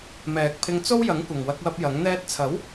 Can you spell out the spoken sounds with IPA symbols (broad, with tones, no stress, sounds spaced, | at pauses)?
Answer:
m ɛː˨ k̚ pʰ ɪ˧ ŋ t͡s o˥ w j ɐ˨˥ ŋ kʷ ɐ˨ ŋ w ɐ˧ k̚ w ɐ˧ p̚ j ɐ˨˥ ŋ n̪ ɛː˧ t̚ t͡sʰ ɐ˨˥ w